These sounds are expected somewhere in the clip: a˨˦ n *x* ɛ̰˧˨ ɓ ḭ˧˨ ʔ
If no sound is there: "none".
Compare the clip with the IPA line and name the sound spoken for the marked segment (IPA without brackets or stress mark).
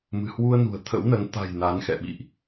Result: x